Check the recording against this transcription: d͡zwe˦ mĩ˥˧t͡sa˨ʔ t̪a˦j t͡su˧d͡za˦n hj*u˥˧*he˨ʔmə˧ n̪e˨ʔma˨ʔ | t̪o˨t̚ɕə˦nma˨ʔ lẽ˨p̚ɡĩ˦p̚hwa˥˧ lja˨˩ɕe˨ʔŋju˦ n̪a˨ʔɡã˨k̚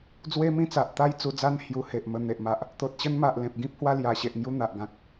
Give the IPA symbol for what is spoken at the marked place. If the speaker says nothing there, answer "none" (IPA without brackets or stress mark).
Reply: u˧